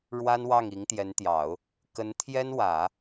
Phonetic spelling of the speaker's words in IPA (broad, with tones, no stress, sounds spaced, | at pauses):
ɻ w a˥ n w ɑ˥˩ ŋ i˧˥ ŋ t̪ j ɛ˧˥ n t̪ j ɑ˨˩˦ ʊ̯ | k ə˧˥ n t̪ʰ j ɛ˥ n w ä˨˩˦